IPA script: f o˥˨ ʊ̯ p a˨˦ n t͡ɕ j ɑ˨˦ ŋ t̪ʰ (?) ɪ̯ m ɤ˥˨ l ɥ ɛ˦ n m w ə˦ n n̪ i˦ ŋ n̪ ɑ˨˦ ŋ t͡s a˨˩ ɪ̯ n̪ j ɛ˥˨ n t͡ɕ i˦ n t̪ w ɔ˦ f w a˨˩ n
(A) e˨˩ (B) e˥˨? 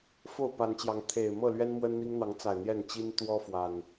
A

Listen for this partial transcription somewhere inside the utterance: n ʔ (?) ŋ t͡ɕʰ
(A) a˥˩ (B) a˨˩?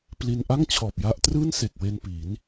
A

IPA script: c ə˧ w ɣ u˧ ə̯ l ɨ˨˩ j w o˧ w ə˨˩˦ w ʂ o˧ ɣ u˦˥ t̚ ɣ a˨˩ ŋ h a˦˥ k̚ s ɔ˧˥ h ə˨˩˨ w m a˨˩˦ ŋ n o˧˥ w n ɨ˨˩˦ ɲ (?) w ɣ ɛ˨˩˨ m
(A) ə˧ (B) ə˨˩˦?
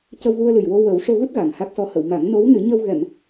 A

